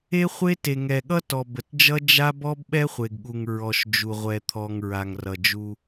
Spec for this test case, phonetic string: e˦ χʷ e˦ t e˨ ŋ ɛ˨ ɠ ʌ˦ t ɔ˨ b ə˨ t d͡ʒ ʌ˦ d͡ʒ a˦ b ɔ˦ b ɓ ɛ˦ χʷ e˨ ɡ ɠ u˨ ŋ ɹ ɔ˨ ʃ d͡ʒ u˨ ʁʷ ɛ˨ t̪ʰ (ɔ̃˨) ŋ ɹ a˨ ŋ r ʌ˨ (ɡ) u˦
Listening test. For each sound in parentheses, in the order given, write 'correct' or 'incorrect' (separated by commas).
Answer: incorrect, incorrect